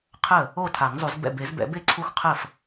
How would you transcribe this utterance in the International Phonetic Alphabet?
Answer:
qʰə˥˩ | o˥˩ tʰa˨˩˦ŋzˤu˨˩˦zbɛ̰˥˩ be˨˩˦zbɛ̰˨˩˦be˥˩ ǀʰu˦˥xqʰə˥˩f

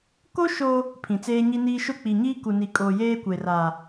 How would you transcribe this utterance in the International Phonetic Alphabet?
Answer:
ko˦ ʃo˦ | pʰĩ˨t͡seː˦ɲi˦niː˦ ʃʊ˦˨k͡pi˨ɲiː˦ ku˨ni˨kʼoː˨ jeː˦kʷe˨ra˨

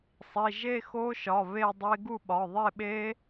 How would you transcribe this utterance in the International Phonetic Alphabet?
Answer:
sˤi˩˧˩ʒe˥˧xo˦˥ʃɒ˩˧˩ βe˥˧dˤe˦˥ ɡu˥˧ɓɒ˩˧˩ðˤe˥˧ɓe˦˥

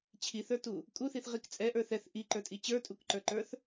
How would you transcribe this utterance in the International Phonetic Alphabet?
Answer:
t͡ɕʰiθə˞tu | kʼuθiθʁik t͡sʼɛʔə˞ θɛθ ʔiǃə˞tʼi t͡ɕə˞tʼukǃə˞ǃə˞θ

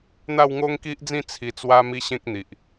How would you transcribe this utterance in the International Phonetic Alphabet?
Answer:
n̪a˥˧wŋo˦ŋki˦ʔd͡zĩ˥˧ t͡sʰi˧t͡swa˦ mi˦ɕẽ˦k̚n̪i˨ʔ

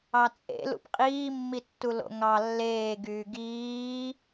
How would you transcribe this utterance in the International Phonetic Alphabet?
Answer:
ɑt͡sʼḛ lṵpqʼiːmːitːu lo̰ŋɑ lːeːɡyː ɡiː

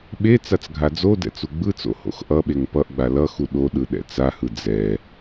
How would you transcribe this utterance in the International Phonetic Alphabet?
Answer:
ɓe t͡sat͡sɡʱad͡zodɛ̰ t͡suɡ͡bɯt͡so̰ ho̰xʔʌɓeŋ pʌʔɡ͡ba lʌxu ɗoɗɯ ɗɛ̰t͡sahɯ d͡zɛ

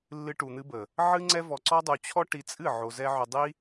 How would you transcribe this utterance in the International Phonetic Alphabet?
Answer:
lːɨ˧ʈu˨n̪ɨ˧bə˨ | ʕɨ˦ŋ͡ǀɛ˦ vɔ˧ǀɔ˦dˤu˧ t͡ɕʰɔ˦ ʈi˧t͡sʼɨ˦˨ ʕo˧zɛ˦ ʕʏ˧dˤi˦

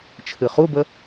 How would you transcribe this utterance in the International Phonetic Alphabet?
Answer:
t͡ʃʰɨχubə

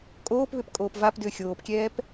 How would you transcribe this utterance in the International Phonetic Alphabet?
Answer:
kʼoːpβʏp kʼoːpvapdʏː xʲoːpkʲɛːp

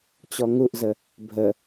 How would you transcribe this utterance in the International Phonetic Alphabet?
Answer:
t͡ɕɔŋuʔzə | bʱə

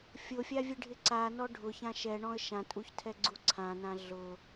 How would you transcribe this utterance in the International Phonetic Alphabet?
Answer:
fʲofʲavʲeɖʱɪ ǀanɔ ɖʱʊçã ʃɛɳɔ̃ə̯ ʃãtʼuçtʰɛɡ͡ǀu ǀʰãnã ɮʊ

